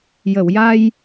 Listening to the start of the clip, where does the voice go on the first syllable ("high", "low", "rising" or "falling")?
low